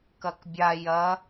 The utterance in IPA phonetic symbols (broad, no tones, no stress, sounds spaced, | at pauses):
k ɐ k bʲ a j ɐ